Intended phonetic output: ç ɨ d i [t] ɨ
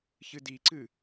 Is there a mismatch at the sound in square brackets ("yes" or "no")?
yes